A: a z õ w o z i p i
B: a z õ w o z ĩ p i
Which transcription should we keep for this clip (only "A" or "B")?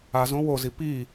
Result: A